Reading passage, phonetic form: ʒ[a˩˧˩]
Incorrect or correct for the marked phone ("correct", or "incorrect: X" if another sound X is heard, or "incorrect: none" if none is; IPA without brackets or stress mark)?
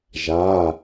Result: correct